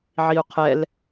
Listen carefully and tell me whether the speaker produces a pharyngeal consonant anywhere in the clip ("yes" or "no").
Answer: yes